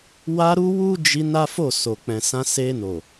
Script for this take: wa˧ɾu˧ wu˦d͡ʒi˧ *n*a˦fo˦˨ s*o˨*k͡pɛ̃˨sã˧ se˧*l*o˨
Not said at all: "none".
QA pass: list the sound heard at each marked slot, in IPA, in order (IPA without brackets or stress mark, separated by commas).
n, o˨, n